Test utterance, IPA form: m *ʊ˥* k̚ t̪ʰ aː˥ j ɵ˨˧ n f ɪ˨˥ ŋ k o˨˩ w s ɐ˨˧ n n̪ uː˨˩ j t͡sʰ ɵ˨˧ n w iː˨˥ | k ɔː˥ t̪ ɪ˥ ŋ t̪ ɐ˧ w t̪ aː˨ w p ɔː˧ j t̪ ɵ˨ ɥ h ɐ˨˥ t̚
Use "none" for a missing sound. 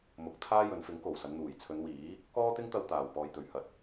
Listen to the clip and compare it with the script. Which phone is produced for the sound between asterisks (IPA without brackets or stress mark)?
ʊ˨˥